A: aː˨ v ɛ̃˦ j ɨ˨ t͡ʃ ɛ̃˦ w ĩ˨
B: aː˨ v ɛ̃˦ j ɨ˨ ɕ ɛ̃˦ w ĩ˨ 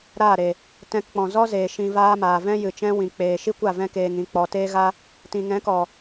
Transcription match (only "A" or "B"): A